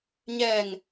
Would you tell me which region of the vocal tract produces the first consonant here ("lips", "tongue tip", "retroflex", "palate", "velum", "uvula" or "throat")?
palate